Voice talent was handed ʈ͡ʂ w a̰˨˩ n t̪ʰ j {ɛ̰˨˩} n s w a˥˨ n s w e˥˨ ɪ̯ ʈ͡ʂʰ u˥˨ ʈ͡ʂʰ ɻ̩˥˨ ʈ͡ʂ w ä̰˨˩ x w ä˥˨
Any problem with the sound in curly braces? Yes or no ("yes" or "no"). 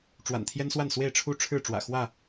yes